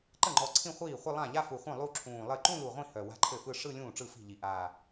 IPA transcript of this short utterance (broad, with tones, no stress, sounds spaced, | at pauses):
ǃ ə˥˩ ŋ͡ǃ ɔ˨˩ ǀʰ ĩ˥˧ χʷ iː˥˩ χʷ ə˥˧ lˠ ã˥˩ ʎ a˥˧ f u˨˩ χʷ œ̃˥˩ lˠ u˥˧ ǁʰ ũː˨˩ lˠ ɘ˥˩ ǃ ũ˥˧ l u˨˩ ʁʷ ĩ˥˩ h œ˨˩ w a̤˥˧ ǃʰ ɘ˥˩ f ɯ˥˧ ʂ ɯ˥˧ lʲ ũː˥˩ ʈ͡ʂ ɯ˥˩ f i̤˥˩ ʎ i˨˩ ʔ aː˨˩